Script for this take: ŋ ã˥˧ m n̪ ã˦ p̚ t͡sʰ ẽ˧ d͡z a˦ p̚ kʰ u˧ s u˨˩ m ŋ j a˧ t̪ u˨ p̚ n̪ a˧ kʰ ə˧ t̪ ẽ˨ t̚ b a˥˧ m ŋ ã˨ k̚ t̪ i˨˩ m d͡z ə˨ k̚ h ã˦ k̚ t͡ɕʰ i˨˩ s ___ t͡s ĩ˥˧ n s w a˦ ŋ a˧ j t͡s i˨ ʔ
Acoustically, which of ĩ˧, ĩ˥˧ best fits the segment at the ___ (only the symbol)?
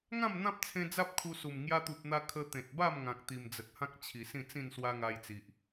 ĩ˥˧